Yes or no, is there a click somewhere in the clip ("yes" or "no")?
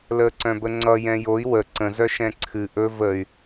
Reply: yes